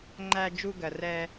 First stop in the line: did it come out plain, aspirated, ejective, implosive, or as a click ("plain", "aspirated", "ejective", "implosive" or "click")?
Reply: click